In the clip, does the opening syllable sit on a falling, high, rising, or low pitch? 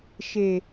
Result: low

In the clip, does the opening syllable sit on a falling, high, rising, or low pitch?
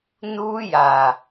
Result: high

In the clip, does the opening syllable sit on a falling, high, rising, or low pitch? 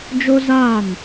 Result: high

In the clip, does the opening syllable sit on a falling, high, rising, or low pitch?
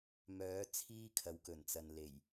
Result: rising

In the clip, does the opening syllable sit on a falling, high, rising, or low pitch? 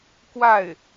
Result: falling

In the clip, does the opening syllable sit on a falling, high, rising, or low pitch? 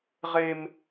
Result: high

